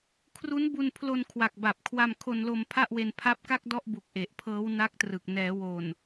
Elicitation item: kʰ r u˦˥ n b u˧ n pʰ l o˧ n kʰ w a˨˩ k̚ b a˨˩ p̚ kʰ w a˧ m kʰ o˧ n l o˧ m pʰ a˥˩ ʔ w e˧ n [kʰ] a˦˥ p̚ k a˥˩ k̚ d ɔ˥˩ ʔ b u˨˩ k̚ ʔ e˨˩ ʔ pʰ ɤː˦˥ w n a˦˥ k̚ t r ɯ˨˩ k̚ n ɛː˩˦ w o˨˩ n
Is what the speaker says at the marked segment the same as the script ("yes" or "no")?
no